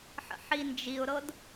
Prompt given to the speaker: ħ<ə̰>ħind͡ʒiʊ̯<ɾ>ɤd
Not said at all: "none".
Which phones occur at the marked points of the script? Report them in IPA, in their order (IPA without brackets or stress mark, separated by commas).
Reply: ə̰, ɾ